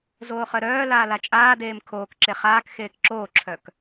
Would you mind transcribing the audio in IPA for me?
z oː χ œ ɾ œː l aː l a t͡ʃʼ aː d eː m kʰ oː k ǁ e χ aː k x eː k ǁ oː ǁʰ œ k

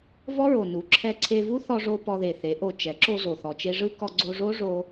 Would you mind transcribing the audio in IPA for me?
v ɔ˦ ɹ o˨ n u˨˦ ǁʰ ɛ˦ ǀʰ e˧ v u˦ θ ɔ˧ ʐ o˧ p ɔ˧ ð e˨ θ e˨˦ ʔ o˧ t͡ʃ ɛ˨˦ ǁ o˧ z o˨ θ ɔ˨ t͡ʃ e˧ ʐ ɯ˦ k ɔ˧ ɡ͡ǀ o˧ ʐ o˦ ʐ o˧

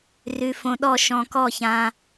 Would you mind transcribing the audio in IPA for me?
r ʉ˨ f õ˨ ɗ ɔ˦˨ ʃ ɔ̃˨ k ɔ˦˨ ç ã˨

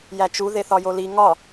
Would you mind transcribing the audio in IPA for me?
j æ t͡ʃ u ð e θ ɒ j o l i ŋ ɒ

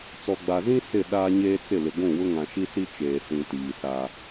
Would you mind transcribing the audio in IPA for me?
t͡s ɔ˨ ɡ͡b a˨ z ĩ˦ s ɪ˦˨ ɗ aː˦ ɲ eː˦ t͡s ɪ˦˨ l ɪ˨ ɡʷ ũ˦˨ w ʊ˦ ŋ ã˨ ʃ i˦ s i˦ t͡ʃ eː˨ s ĩ˨ t iː˨ s a˦

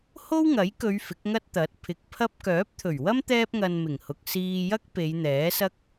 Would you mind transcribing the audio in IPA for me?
h o˥ w ŋ ɐ˨˥ j k ɵ˨˧ ɥ f ɪ˨˥ k̚ ŋ ɐ˥ t̚ t̪ ɐ˨˥ t̚ pʰ ɪ˨ k̚ pʰ ɐ˥ p̚ k œː˨˥ p̚ t̪ʰ ɵ˨˩ ɥ w ɐ˥ m t̪ ɛː˥ p̚ ŋ ɐ˧ n m ɪ˨˩ ŋ h ʊ˨ k̚ s iː˧ j ɐ˥ k̚ p e˨˧ j n̪ ɛː˨˥ s ɐ˥ k̚

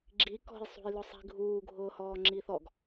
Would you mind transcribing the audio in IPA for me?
ɡ͡ǁ i k ɔ̤ j sˤ ṳ j l ʊ sˤ i̤ ɡʱ uː ɡʱ ʊː h ɔː ŋ͡ǁ iː θ ɔ ɡ

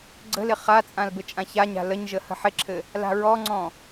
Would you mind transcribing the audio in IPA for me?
ɡ͡ǀ ə̤ l ɪ χ a t͡sʼ ã l b ɘ t͡ʃʼ ã ç a ɲ a̤ l ə ɲ ʒ ə h ə̤ ħ ɪ ǁʰ ɘ | l a̤ ɹ ɔ ŋ͡ǀ ɔ̃

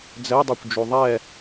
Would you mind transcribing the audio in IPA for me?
d͡z ɛ dˤ u kʷ d͡ʒ u ðˤ ɛ

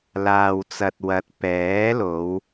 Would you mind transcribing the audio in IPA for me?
l aː˨ w t͡s ɐ˨ t̚ w ɐ˨˥ t̚ p ɛː˨˥ l o˨˧ w

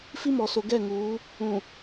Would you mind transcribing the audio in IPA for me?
f i˦ m ɔ˨ s o˨ ɡ ɛ˦˨ ŋ uː˨˦ | ũ˨

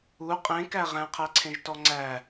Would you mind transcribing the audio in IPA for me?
u qʼ ẽ k æ ʁ æ̃ qʰ æ ǀʰ ẽ ʒ t ɔ ŋ͡ǀ æ

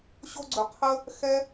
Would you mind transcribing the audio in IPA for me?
ɕ o˥ ɡ͡ǀ ɵ˧ qʰ ə˥ | x ɛ˥

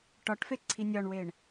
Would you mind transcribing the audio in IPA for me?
ʈ ɒ ʈ f e ǀʰ i nʲ ɒ ɳ w e ɳ

